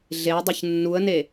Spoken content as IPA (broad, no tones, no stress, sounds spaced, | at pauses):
ɮ e ʊ̯ dˤ ɯ ç nː u ə̯ n e